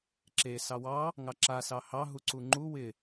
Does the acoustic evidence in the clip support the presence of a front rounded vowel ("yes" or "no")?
no